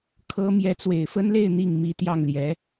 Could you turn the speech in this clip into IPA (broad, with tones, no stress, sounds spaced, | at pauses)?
kʰ ɤ˥ m j ɛ˧˥ t͡s w e˨˩ ɪ̯ f ə˥ n l e˥˧ ɪ̯ n̪ i˥˩ ŋ m i˥ t̪ j ɑ˥˩ ŋ l j ɛ˧˥